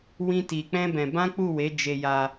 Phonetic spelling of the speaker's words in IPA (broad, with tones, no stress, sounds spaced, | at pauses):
w ĩ˦ t i˧ k͡p ɛ̃˦ b ɛ̃˧ b ã˦ k͡p u˦˨ w e˨˦ d͡ʒ e˧ j a˧